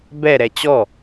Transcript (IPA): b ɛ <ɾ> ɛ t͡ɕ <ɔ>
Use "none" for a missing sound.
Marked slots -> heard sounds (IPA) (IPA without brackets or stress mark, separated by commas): ɾ, ɔ